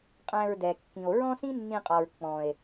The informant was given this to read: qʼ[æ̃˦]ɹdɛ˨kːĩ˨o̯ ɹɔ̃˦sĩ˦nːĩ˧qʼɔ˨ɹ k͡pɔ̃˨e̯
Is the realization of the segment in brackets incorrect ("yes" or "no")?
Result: yes